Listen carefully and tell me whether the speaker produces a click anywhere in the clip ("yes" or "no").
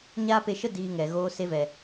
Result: no